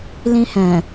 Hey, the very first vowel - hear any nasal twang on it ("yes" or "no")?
yes